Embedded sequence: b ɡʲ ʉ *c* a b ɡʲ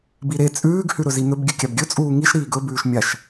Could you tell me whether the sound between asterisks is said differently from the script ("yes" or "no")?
yes